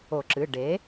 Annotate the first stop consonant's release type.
click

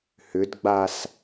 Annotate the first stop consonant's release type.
plain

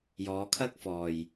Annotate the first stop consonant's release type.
aspirated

